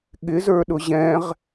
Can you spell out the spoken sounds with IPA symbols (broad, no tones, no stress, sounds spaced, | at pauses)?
ɠ ɪ z ə˞ ɗ ʊ ʑ ɛ̃ ʁ